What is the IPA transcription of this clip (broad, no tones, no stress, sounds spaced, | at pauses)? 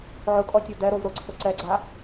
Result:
ʕ ʊ kʼ ɔ tʲ o d ɛ ɾ o v ɾ ʊ ǀʰ ʊ ǀ ɛ ɡ͡ǀ a